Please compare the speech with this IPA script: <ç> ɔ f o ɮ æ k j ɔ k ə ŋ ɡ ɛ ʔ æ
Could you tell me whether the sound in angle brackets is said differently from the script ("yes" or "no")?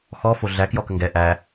yes